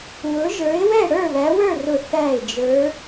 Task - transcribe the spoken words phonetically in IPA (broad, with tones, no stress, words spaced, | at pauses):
wʊ˨˦ʒə˞˨˦ɪ̯ wɛ˥˨ɽə˞˥˨βæ˨˦wə˞˥˨ rʊ˧˩θæ˧˩ɪ̯ d͡ʒə˞˨˦